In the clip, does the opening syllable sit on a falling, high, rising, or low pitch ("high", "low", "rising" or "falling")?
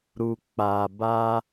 low